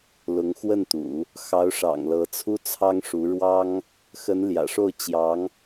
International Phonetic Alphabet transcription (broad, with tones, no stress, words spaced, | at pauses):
lʊ˧˥ŋxwə˥˩nt̪ṵ˨˩˦ | xɑ˧˥ʊ̯ʂɑ̰˨˩ŋ lɤ˧˥t͡sʰu˥t͡sʰɑ˥ŋʂu˧˥ ɻwɑ˥ŋ | xə˧˥nljä̰˨˩ʂo˥˩ʊ̯ t͡ɕjɑ˧˥ŋ